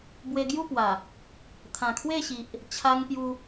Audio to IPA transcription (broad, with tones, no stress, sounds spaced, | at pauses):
b w e˧ ɡ j u˥˧ p w a˨˩ | t̪ʰ ã˨˩ kʰ w e˥˧ ɕ i˨ ʔ | t͡ɕʰ a˧ ŋ p j u˧